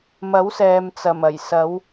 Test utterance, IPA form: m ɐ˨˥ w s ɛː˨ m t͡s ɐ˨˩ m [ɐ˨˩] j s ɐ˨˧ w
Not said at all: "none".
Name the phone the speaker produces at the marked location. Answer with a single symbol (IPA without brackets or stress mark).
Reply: ɐ˨˩